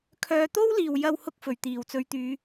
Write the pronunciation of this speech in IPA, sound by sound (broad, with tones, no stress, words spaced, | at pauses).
kʰœː˨t̪o˥wliː˨˩w jɐ˧whʊ˧k̚ fɵ˨˩ɥt̪iː˨˩wt͡sɵ˨˥ɥt̪yː˨˧